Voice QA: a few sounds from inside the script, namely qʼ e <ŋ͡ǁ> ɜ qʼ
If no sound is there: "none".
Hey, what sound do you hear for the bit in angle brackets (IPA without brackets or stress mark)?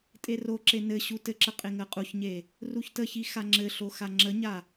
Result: ŋ